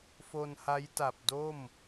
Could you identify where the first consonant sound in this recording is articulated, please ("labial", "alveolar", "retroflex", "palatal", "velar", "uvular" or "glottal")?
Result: labial